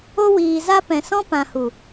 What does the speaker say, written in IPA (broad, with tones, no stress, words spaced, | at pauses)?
o˦ wiː˨za˦ pɛ̃˨ sɔ̃˦ pã˨hu˨